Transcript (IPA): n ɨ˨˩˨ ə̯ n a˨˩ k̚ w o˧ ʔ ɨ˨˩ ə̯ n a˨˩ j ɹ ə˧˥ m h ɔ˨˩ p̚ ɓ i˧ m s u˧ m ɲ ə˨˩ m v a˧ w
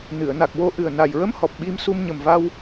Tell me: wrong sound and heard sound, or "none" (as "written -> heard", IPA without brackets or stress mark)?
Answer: none